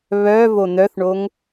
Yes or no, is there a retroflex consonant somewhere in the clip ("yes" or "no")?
yes